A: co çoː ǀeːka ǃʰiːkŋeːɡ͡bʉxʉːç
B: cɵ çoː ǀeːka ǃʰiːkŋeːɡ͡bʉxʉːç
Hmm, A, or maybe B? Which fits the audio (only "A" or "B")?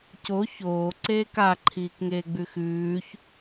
A